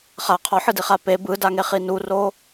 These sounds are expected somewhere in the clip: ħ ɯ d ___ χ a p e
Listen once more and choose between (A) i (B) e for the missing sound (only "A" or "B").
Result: A